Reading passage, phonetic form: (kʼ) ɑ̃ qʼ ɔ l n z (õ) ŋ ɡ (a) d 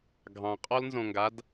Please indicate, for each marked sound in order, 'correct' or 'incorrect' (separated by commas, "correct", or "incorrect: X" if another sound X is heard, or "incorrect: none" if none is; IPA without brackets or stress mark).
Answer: incorrect: ɡʱ, correct, correct